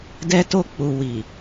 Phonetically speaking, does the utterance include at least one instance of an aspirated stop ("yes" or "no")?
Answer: no